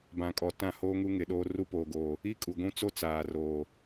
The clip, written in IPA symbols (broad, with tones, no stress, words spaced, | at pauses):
bã˨kʼɔ˨ tã˦˨hoː˦ŋu˦ ŋɪ˨ɗoː˦ ru˦poː˨ɡoː˨ | i˦kʼu˨ɡʷũ˦t͡so˦ t͡saː˨roː˨